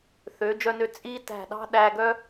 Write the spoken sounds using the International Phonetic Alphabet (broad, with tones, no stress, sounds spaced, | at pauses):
θ ø˩˧ d͡ʒ œ˧ n ø˧ t͡sʼ i˥ t æ̤˧˩ ɗ ɑ̤˥ ɗ æ˧ ɡ œ˥